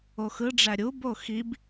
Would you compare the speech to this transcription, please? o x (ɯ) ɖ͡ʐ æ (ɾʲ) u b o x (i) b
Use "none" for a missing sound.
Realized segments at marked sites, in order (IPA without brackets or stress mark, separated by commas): ɯ, ɾʲ, i